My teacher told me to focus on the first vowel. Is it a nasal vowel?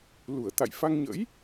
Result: no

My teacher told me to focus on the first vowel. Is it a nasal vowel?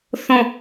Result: yes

